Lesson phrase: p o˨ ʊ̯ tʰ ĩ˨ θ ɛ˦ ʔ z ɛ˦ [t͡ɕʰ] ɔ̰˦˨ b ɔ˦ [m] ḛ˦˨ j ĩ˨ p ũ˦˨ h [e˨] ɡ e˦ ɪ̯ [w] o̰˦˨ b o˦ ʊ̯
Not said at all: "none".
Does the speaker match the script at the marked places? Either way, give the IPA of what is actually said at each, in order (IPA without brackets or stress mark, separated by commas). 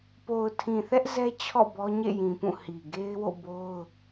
t͡ɕʰ, ɲ, i˨, w